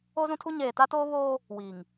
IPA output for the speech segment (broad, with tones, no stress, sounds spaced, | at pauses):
o˦ z ũ˦ tʰ u˦ ɲ eː˨ t a˦ t oː˦ β oː˦ | w iː˨ ŋ